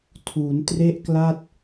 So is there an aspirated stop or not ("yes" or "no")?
yes